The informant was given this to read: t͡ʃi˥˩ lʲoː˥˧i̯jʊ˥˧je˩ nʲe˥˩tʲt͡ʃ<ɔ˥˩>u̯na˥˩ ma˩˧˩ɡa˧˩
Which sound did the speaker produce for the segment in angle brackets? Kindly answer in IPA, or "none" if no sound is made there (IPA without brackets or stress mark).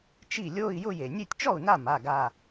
ɔ˥˩